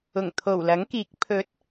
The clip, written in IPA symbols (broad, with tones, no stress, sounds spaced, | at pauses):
ʊ˨˩ ŋ t̪ʰ o˨˩ w l ɐ˨˥ ŋ k iː˨˥ k̚ pʰ ɵ˨˥ t̚